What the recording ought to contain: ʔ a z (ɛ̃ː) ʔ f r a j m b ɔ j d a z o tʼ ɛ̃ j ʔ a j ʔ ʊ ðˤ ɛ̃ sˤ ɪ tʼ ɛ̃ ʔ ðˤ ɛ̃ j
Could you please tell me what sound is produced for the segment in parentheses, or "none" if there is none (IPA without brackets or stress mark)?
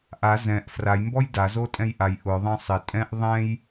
ɛ̃